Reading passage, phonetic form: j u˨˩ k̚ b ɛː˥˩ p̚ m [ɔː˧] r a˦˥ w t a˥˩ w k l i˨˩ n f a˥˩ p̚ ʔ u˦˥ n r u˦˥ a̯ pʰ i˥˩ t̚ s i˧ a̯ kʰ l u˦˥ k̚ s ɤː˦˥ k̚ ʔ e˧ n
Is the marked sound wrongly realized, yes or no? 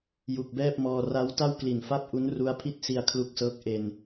no